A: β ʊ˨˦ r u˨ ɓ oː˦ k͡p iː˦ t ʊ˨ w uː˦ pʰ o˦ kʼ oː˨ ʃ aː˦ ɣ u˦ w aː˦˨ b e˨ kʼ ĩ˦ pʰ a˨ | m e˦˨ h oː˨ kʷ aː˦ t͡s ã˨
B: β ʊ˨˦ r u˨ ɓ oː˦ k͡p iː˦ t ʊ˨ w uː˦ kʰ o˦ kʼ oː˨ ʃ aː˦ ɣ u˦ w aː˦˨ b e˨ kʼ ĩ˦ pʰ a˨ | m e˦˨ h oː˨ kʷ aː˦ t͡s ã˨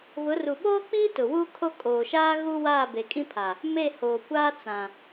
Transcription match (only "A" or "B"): B